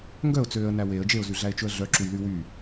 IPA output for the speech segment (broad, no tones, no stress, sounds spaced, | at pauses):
ŋ ɡ œ ʊ̯ t͡s øː ə̯ n æ w e ə̯ d͡ʒ e ʊ̯ z y ɮ æ ɪ̯ t͡ʃ ɵ ə̯ ɮ œ ǁ u j l y w y